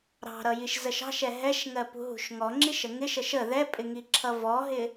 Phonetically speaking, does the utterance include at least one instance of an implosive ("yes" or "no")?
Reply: no